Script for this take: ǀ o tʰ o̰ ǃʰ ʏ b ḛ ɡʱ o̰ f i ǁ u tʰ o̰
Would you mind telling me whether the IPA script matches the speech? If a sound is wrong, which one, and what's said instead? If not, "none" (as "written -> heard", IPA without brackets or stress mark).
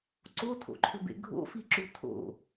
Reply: none